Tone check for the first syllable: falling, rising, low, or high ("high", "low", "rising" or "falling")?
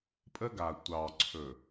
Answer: high